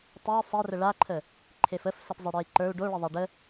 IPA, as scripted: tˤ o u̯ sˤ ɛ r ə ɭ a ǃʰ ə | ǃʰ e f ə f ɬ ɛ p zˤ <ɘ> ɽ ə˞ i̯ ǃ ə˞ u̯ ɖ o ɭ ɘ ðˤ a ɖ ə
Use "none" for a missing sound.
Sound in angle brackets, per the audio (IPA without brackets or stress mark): ɛ